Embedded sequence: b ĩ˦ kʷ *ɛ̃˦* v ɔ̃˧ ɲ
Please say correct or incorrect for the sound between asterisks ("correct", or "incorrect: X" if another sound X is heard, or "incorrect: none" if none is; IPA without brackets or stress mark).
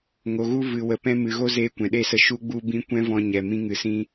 correct